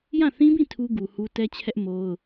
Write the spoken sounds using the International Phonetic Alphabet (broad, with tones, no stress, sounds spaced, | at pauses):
j ã˦˨ θ ĩ˦ b ĩ˦˨ tʰ u˦ ɡ u˨ h u˦ t ɛ˦ t͡ɕʰ ɛ˦ ʔ m o˦ ʊ̯